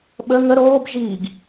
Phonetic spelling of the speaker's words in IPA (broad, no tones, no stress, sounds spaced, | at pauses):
ɓ ə ŋ ə ɾ oː b ʒ iː ɡ